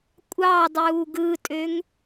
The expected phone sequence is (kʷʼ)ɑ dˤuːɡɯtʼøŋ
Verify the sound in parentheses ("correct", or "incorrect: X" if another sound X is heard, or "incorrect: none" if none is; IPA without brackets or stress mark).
correct